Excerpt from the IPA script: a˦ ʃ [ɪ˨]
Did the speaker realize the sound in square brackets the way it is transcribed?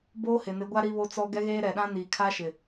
yes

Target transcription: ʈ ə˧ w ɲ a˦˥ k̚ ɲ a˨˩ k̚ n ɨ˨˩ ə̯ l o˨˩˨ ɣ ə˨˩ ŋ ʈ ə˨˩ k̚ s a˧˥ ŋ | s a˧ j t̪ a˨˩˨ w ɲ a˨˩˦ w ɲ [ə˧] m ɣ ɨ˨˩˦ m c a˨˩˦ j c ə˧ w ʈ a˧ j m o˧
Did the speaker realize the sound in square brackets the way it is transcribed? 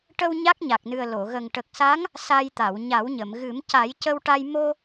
no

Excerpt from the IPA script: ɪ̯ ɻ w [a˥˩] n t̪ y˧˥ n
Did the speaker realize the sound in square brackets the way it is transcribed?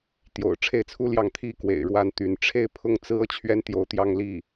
yes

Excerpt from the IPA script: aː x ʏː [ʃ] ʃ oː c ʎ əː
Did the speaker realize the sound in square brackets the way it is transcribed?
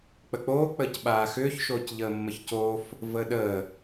no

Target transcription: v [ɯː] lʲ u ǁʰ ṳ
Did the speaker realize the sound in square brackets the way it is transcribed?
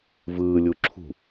yes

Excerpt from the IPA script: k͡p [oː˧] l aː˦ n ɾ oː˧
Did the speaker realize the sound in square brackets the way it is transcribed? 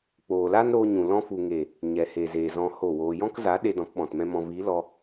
no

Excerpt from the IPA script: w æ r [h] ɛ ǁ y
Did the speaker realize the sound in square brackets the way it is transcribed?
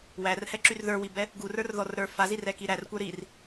yes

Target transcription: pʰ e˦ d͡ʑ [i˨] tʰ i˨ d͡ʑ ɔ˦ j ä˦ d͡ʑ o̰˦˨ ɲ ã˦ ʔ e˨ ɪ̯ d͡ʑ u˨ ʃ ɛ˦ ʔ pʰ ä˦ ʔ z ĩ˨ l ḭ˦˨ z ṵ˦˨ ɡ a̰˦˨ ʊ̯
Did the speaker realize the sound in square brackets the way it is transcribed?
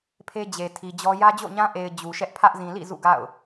no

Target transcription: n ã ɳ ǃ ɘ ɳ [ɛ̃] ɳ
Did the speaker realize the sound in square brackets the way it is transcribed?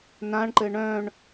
no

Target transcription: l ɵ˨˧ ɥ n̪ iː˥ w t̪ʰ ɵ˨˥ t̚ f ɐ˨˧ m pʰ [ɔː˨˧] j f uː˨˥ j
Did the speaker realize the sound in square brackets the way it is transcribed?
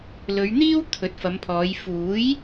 yes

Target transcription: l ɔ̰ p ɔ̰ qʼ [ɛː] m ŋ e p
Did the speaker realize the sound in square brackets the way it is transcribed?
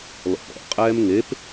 yes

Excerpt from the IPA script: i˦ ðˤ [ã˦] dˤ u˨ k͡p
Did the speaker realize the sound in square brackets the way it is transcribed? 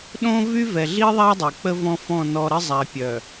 no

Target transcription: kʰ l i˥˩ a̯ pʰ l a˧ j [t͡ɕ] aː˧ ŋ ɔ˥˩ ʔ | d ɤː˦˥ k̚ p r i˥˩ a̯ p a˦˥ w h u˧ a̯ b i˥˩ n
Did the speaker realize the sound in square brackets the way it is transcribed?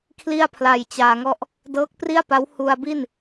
yes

